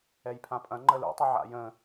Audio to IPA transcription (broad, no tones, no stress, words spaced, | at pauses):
ɛjpʰãpʼɐ̃ ŋ͡ǃəlṵtˤɨ ʕa̰jə̃